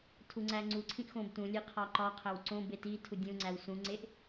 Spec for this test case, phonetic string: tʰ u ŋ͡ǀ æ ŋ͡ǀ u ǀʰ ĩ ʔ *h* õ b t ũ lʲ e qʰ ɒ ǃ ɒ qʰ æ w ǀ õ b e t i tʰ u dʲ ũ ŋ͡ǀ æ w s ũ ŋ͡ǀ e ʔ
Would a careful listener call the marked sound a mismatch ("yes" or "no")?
yes